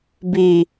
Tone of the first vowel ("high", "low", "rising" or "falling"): low